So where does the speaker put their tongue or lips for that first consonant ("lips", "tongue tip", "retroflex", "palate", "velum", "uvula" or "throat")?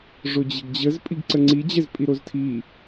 retroflex